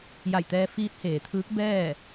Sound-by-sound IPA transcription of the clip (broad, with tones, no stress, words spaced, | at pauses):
ja˧˩jt̪ɛː˧ fiː˧˥t̚heː˩t̪ʰɯː˧˥k̚ bɛː˥˨